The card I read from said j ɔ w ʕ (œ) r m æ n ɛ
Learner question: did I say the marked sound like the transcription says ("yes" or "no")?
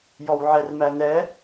no